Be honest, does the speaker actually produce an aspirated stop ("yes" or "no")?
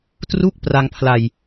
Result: yes